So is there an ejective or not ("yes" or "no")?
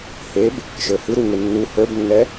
no